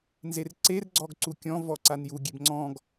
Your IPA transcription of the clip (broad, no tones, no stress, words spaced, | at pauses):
nzerǀer ɡ͡ǀɔɡǀukʲɔ̃ vɔǀanju ɡʲebŋ͡ǀɔ̃ɡ